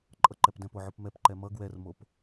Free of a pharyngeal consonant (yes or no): no